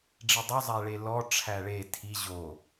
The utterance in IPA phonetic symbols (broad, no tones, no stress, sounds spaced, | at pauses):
ɖ͡ʐ i dˤ o zˤ æ ɭ e l ɔ ʈ͡ʂʰ æ ɭ e tʰ i ʑ o